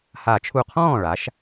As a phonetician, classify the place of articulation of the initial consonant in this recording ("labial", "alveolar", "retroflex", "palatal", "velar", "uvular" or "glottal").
glottal